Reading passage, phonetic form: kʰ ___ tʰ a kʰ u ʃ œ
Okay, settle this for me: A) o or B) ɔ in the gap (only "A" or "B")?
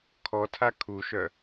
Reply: B